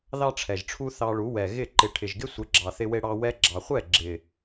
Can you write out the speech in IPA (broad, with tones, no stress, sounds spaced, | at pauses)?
ð ɑ˦ ʈ͡ʂʰ ɛ˨ ʒ ʈ͡ʂʰ u˦ θ ɑ˧ ɭ u˨˦ w ɛ˨ ɣ ɪ˦˨ ǃ ɪ˧ ʈʰ ɪ˨ ʒ ɡ ɪ˦ sʷ ɪ˨˦ ɡ͡ǁ ɑ˨ θ ɪ˦ w e˦ ɽ ɑ˦ w ɛ˧ ɡ͡ǁ ɑ˨ χʷ ɛ˦˨ ɡ͡ǁ ɪ˨